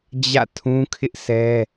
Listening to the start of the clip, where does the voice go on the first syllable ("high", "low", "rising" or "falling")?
falling